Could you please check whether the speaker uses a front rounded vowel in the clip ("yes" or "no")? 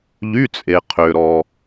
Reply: yes